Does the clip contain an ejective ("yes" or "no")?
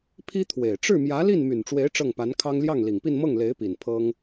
no